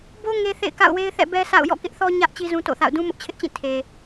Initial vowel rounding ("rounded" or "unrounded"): rounded